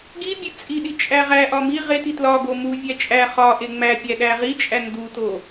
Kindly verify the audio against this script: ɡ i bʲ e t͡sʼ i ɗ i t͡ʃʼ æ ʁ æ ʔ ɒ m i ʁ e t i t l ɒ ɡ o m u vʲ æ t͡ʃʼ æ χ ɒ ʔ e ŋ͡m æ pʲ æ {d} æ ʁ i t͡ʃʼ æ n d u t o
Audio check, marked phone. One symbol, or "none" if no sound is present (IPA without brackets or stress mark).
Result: ɗ